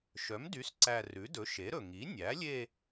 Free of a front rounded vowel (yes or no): no